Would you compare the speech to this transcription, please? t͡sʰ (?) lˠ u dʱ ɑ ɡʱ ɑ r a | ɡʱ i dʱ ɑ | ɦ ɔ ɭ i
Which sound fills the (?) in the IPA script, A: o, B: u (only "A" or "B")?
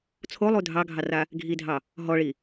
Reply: A